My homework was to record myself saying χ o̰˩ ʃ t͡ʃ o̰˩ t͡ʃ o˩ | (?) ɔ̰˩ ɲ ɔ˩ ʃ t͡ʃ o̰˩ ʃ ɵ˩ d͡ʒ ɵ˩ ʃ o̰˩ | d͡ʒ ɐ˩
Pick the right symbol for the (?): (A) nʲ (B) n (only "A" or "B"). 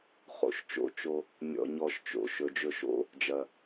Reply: A